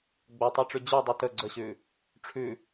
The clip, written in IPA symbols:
ɡ͡b o tˤ a ʈ͡ʂ ʉ d͡ʑ ʉ dˤ ʉ t ə ɡ͡ǀ ə ɕ ʉ | ʈ͡ʂʰ ʉ

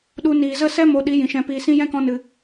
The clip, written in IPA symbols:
ɗ u˧ n iː˨ z ə˦˨ s ɛ˦ m o˧ ɗ i˨˦ j ĩ˨ ʃ ɛ̃˧ p iː˧ s ĩ˦ j ɛ̃˦ k ɔ̃˧ n ɨ˨

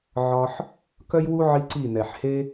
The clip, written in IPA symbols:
ʕ ɒ˧ ħ | k œ˦ j w u˦ ʕ i˦ ǀ i˦˨ n ɛ˨ ħ h e˦

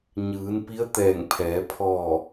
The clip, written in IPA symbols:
ɲ ɯː˩˧ n p i˧˥ ə̯ t̪ ɛː˧˩ ŋ pʰ ɛː˩˧ pʰ ɔː˧˩

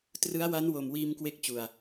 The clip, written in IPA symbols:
t r ɯ˦˥ a̯ w a˦˥ n w o˨˩ m w iː˧ m k w e˦˥ k̚ t͡ɕ u˨˩ a̯

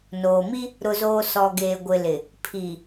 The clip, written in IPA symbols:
n oː˨ m i˦ | ɾ ʊ˨ z oː˨ s ɔ˨ ɡ eː˨ ɡʷ ɪ˨ l ɪ˨ | pʰ i˨

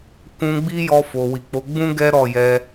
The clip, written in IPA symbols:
k ũ˧ ɡ͡b i˦ j ɔ˧ f o˨ w i˨ k͡p o˨˦ ɡ͡b ũ˦ ɡ ɛ˦ ɾ ɔ˦˨ j ɛ˧

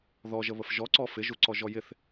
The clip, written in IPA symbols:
ð ɔ ʒ ə β ə f ʒ ɔ ǀ ɔ f ɪ ʒ u ǀ ɔ ʒ ɔ j ɪ θ

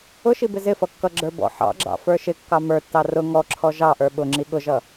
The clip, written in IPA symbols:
ʊ ʃ i b ɪ z ɪ f ʌ kː ʌ ɡ͡ǁ ə˞ b ɔ̰ ħ ɑ̰ ɡ͡ǁ ɑ̰ f ə˞ ʃ ɪ kː ɑ m ə˞ tː ɑ r ʊ ŋ ɔ ǁʰ ɔ ʒ ɑ ʔ ə˞ ɓ ʊ ŋ͡ǁ i ɠ ʊ ʒ ʌ

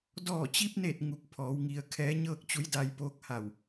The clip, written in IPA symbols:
d ɔː˧˩ t͡ɕ i˧ p̚ n e˧˩ t̚ ŋ u˧˩ k̚ pʰ ɔː˩˧ w ŋ i˩ ə̯ kʰ ɛː˧˥ ɲ ɤː˥˨ k̚ t͡ɕ u˧˥ j d a˧ j p oː˧˥ k̚ h a˧˩ w

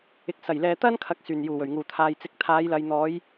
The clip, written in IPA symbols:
ɪ˨˥ k̚ s ɐ˨˩ j l ɛː˨ t̪ ɐ˥ n kʰ ɐ˨˥ k̚ s yː˨˩ n j uː˨˩ w ɵ˨˩ ɥ ŋ uː˨˩ t̪ʰ aː˨ j t͡s ɪ˨˥ k̚ t̪ʰ aː˨˧ j l ɐ˨ j n̪ ɔː˨˧ j

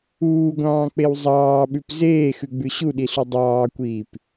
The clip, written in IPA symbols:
uː ɡʷ ɑ̃ː k͡p e w zˤ ɑː ɓ ʉ p z eː x ʉ ɡ͡b ʉ ɕ u ɗ i ɬ u dˤ ɑː kʷ iː p

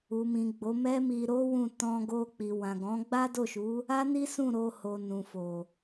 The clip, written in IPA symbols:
u˨ m ĩ˨ ɡ͡b o˨˦ m ɛ˦ m i˧ ɾ o˦ w ũ˦˨ t ɔ̃˧ ɡ o˧ k͡p i˨ w ã˨ ɡ ɔ̃˨˦ ɡ͡b a˦ d o˦˨ ʃ u˨˦ | a˦ n i˦ s ũ˦˨ ɾ o˧ h o˨ n ũ˨ f o˨

